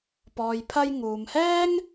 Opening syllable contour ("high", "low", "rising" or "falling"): low